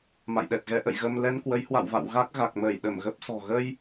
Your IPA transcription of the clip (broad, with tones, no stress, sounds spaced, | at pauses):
m a̰˧˨ j ɗ ɛ˨˩ t̚ ɣ ɛ˨˦ ʔ ə̰˧˨ j ɣ ə˧ m l ɛ˧ n k w ə˨˦ j h w a̰˧˨ w v a̰˧˨ w ɣ a˦˥ k̚ ɣ a˨˩ k̚ m əː˧˩ j ɗ ə˧˩ m ɣ ə˦˥ p̚ s ɔ̤˨˩ ɣ ə˧ j